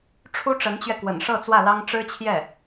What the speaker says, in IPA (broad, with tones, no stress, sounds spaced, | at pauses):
ʈ͡ʂʰ u˥ ʈ͡ʂ ə˧˥ n t͡ɕ ɥ ɛ˧ k w ə̰˨˩ n ʂ ɤ˥˧ t͡s w ä˥˩ l ɑ˥ ŋ ʈ͡ʂ ɻ̩˥ t͡ɕʰ j ɛ˥˩